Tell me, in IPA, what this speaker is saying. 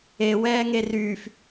e w ɛː ŋ e r yː f

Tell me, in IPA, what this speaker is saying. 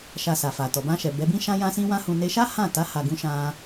ʃ a˧ s a˨ f a˨ t ɔ˨ b ã˧ ʃ ɛ˨ b ɛ˨˦ b ĩ˦ ʃ ã˦ j ã˦ s ĩ˦ w ã˦ h ũ˧ n e˧ ʃ a˦ h ã˦˨ t a˨˦ h a˧ ɡ ũ˦ ʃ ã˦

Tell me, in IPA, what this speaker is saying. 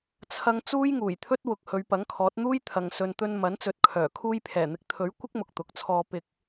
t͡sʰ ɐ˧ ŋ t͡s uː˥ j ŋ uː˨˩ j t̪ʰ ɵ˥ t̚ w ʊ˨˥ k̚ h ɵ˨˧ ɥ p ɐ˨˥ ŋ kʰ ɔː˨˥ t̚ n̪ uː˥ j t̪ʰ ɐ˨ ŋ s ɵ˨ n t̪ ɵ˧ n m ɐ˨˥ n t͡s ɵ˨˥ t̚ kʰ œː˨˩ kʰ uː˧ j pʰ ɛː˨˩ n̪ ɪ˨˥ k̚ t̪ʰ ɵ˨˥ ɥ kʷ ɪ˥ k̚ m ʊ˨ k̚ t̪ ʊ˨ k̚ t͡sʰ ɔː˧ p ɪ˧ k̚

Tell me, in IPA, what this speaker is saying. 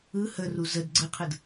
ɯ h ə r u z ə d ɡ͡ǀ ɯ qʰ ɯ d

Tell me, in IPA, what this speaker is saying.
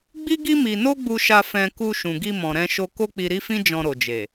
ɡ͡b i˦ ɡ i˦ m i˧ n o˦ ɡ͡b u˧ ʃ a˧ f ɛ̃˧ k u˧ ʃ ũ˨ ɡ i˧ m ɔ̃˨ ɾ ɛ̃˧ ʃ o˧ k o˦ k͡p i˧ ɾ i˦ f ĩ˦ d͡ʒ ɔ̃˧ ɾ o˨ d͡ʒ e˨

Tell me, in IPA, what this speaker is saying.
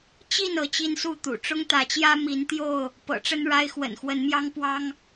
t͡ɕ i˥˨ n ɤ˨˦ t͡ɕ i˦ n s u˥˨ t̪ ṵ˨˩ ʈ͡ʂ ʊ˦ ŋ t̪ ä˨˦ t͡ɕ j ä˦ m i˨˦ n t̪ j o˥˨ ʊ̯ | p ɤ̰˨˩ ʈ͡ʂ ə˦ n ɻ a˦ ɪ̯ x w ə̰˨˩ n x w ə˨˦ n m j ɑ˦ ŋ p w ɑ˦ ŋ

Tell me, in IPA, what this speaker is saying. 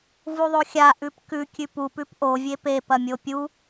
v u ðˤ o xʲ a ʔ ʉ p k ʉ kʲ ʉ p u p ʉ p ʔ o vʲ e p e p ɐ mʲ o pʲ u

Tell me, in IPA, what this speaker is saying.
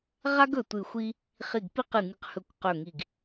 ʁ a˥ ɡ ɵ˦˨ tʷ ɨ˦˨ xʷ i˥ | χ i˦˨ ɡ p i˥ q ɨ˦˨ ŋ ɨ˦˨ q h ɵ˦˨ kʷ q ɵ˦˨ ŋ i˦˨ ɡ

